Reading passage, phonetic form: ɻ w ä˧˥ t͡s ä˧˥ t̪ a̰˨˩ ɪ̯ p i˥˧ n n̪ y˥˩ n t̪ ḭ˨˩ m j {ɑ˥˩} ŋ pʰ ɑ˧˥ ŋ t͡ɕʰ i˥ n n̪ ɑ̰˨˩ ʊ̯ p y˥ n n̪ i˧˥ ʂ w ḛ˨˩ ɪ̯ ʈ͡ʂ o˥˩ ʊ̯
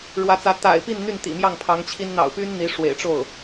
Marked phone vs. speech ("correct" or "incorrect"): correct